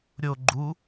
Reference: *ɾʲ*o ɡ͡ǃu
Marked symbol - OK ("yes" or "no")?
yes